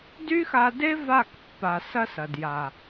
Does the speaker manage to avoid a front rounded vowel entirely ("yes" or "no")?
no